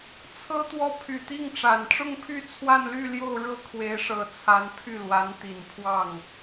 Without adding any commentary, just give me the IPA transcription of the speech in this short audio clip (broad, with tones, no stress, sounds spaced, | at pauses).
t͡sʰ ɤ˥ t̪ w ɔ˥˩ pʰ y˨˩ t̪ i˥˩ ŋ ʈ͡ʂ a˨˩ n ʈ͡ʂ ʊ˥˧ ŋ pʰ y˥˧ t͡sʰ w a˥˧ n l y˥˧ l j o˥˧ ʊ̯ ɻ ɤ˥˩ kʰ w e˧˥ ɪ̯ ʂ ɤ˧˥ t͡sʰ a˧˥ n pʰ y˥˩ l w a˧˥ n t̪ i˨˩ n pʰ w ɑ˥˩ ŋ